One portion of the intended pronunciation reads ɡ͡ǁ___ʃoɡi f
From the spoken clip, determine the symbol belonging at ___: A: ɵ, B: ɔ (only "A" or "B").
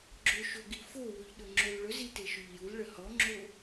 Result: A